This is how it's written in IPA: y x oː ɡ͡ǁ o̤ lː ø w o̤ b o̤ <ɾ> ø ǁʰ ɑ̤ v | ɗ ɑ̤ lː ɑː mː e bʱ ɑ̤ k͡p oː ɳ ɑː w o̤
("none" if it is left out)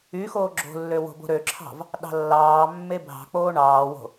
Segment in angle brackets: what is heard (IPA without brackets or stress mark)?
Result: ɾ